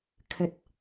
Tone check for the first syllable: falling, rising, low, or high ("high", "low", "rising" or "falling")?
high